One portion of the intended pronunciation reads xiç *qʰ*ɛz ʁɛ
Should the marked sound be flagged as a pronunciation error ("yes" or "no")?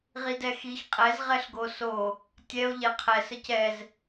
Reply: yes